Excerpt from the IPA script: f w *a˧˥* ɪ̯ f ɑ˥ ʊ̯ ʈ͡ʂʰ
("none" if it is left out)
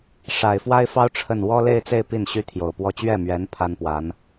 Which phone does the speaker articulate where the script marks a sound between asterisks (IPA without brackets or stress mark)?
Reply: a˥